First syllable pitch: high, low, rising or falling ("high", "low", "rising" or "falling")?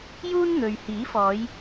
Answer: high